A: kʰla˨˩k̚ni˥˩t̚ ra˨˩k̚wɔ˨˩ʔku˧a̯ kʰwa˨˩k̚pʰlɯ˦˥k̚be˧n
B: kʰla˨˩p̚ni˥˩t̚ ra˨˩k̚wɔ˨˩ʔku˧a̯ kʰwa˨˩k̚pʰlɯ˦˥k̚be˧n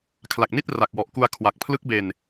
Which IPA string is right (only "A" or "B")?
A